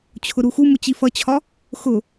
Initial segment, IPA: t͡ɕʰ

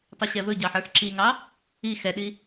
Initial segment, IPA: tˤ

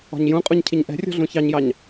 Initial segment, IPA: ɔ̤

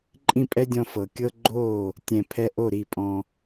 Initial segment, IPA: ǃʼ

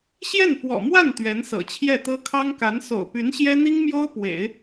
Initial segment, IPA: ɕ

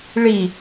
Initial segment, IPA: ɭ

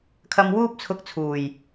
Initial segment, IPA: kʰ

